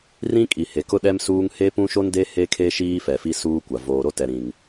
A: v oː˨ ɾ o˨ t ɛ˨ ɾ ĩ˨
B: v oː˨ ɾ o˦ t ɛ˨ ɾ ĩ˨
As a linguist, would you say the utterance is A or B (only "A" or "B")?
B